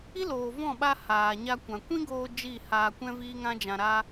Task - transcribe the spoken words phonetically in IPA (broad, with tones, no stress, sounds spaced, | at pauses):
i˦ l oː˨ v ɔ̃˦˨ ɓ a˧ h aː˨ ɲ a˧ kʷ ã˨ kʷ ĩ˦ ɡ oː˧ d͡ʒ i˦˨ h aː˧ kʷ ɛ̃˦ v iː˦ ŋ ã˦ d͡ʒ ã˧ ɾ a˦